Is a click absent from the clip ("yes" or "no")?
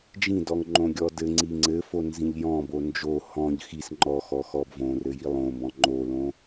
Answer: no